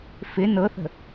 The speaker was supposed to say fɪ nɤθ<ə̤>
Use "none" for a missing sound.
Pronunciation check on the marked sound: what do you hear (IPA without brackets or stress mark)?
ə̤